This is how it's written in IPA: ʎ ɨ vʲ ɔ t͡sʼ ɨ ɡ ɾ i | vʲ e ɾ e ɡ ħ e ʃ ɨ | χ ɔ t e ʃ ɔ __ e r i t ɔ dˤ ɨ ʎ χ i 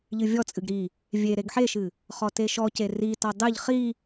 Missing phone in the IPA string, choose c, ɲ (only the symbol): c